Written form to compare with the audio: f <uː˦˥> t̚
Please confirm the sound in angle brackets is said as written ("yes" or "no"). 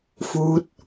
yes